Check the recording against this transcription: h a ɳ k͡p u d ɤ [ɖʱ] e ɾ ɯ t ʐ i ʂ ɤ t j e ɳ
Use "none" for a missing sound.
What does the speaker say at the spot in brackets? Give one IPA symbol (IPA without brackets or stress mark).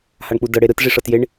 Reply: ɽ